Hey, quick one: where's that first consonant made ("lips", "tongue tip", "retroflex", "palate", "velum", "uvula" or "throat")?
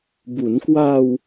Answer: lips